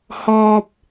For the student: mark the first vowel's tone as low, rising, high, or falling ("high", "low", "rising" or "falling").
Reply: high